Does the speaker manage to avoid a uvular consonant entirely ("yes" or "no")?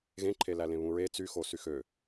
yes